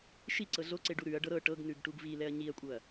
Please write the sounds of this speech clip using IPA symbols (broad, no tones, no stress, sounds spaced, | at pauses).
ʃ i ǀ ɤ ɮ o ǀ e ɖ u ɾ ʉ ɐ̯ ɖ ɤ ɾ ɤ ʈ ɤ ɡ n ʉ ɡ ʈ u ɡ v i l ɛ ɐ̯ ɲ i ɐ̯ kʷʼ ɤ ɐ̯